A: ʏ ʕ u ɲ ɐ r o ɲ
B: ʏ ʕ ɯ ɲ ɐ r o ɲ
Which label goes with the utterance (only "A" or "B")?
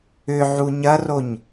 A